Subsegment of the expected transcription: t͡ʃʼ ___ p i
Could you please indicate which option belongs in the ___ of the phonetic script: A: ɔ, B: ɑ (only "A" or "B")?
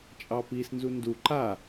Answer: B